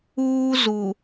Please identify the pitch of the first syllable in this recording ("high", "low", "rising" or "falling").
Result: high